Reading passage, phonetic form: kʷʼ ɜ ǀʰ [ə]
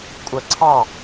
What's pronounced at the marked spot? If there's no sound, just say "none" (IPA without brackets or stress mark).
ɑ